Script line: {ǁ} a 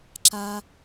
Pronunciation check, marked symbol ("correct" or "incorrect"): correct